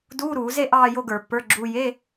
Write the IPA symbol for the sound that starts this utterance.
d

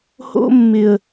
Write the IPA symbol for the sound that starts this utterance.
h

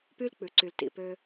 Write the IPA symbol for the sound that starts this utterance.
p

